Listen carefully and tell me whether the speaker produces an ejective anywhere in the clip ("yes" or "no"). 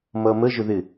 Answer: no